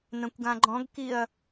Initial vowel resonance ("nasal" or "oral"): nasal